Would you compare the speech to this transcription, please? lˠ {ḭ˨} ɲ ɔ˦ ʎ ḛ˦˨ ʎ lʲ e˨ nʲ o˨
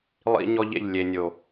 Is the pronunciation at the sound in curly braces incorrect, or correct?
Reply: incorrect: ḭ˦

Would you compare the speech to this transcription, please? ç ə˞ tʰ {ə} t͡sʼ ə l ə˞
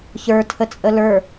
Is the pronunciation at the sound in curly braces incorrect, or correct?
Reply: correct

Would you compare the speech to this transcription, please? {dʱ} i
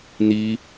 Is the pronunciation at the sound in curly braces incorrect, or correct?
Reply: incorrect: n̪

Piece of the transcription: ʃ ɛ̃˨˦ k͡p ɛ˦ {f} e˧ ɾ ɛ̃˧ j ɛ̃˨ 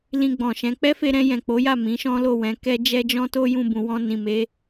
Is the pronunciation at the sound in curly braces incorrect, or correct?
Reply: correct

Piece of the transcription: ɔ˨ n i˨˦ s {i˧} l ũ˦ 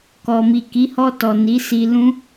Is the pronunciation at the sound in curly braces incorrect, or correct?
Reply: correct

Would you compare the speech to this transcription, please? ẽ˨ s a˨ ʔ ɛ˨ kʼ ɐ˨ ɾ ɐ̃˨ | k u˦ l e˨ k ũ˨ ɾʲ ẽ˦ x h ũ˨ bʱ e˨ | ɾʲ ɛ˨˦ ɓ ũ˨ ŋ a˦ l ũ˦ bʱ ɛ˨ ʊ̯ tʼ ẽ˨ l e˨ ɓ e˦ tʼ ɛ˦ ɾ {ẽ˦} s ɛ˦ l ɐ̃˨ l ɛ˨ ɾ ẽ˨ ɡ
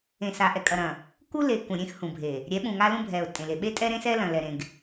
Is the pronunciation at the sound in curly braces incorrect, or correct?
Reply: correct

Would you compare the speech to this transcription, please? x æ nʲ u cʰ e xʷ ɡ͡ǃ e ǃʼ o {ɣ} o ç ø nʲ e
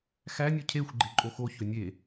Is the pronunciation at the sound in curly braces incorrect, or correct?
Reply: incorrect: x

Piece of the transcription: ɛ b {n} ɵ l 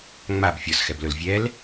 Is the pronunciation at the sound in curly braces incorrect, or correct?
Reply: incorrect: l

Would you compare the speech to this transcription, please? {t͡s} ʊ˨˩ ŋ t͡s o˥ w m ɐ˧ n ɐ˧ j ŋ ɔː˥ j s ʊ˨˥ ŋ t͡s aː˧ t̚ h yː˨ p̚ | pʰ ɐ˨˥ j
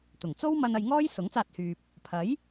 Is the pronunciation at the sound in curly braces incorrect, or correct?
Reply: incorrect: t̪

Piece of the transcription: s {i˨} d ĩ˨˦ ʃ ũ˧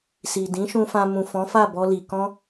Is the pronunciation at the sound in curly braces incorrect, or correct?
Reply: correct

